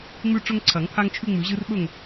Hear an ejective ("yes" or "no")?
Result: no